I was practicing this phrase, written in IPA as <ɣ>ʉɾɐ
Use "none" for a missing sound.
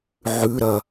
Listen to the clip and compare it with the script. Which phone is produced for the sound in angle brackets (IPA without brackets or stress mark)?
ʕ